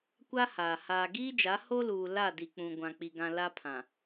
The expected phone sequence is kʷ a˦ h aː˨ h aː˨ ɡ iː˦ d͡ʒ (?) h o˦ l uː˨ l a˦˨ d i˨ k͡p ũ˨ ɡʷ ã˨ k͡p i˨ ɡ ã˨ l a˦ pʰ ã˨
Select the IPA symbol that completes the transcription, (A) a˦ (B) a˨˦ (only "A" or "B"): B